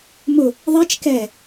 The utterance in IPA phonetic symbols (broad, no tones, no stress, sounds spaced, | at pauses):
m ʊ | ðˤ i t͡ʃ k ɛ